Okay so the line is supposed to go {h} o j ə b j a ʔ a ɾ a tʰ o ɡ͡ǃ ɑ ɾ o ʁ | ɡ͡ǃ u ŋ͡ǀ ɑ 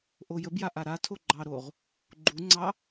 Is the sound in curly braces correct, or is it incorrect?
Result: incorrect